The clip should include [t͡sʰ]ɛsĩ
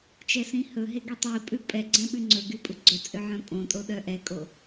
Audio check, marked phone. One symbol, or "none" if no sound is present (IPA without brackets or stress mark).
t͡ʃ